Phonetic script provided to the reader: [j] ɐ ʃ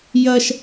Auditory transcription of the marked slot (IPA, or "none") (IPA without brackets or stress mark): j